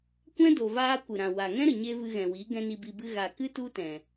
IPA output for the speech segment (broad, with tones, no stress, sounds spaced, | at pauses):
kʷ ɛ̃˦ d o˨ v aː˧ kʷ ɨ˨ ɾ ã˨ w a˨ ŋ ɛ̃˦ ɾ ə˨ ɲ e˧ v ɨ˧ ɣ ɛ̃˨ w i˨˦ ɡ ɛ̃˦ n i˧ b i˧ b ɨ˦ ɣ a˨ k ɨ˦ t u˦ t ɛ̃˨